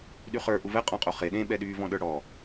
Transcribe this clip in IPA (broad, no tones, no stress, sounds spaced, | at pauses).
ɗ y χ ə˞ ʔ u v ɛ qʼ ɔ̃ qʼ o χ e ɗ ẽ ɓ ɛ ɗ yː v ɔ̃ ɗ ə˞ ɽ ɔ